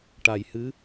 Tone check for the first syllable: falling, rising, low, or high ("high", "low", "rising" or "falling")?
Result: low